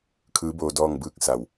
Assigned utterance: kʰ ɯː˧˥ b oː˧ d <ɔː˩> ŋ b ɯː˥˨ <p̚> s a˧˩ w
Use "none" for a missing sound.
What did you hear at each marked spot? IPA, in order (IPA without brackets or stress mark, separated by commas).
ɔː˥˨, k̚